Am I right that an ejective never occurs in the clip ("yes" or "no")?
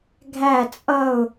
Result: no